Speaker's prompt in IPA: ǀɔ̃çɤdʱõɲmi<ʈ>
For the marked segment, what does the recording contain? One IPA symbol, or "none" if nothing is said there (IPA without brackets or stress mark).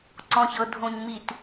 t